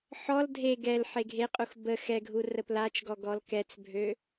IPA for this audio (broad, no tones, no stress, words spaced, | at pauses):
ħɔl dʱe ɡɛl ħeɡʱeqʼux bə xɛɡʱu rəplat͡ʃɡɔ ɡɔlkɛt͡sbʱø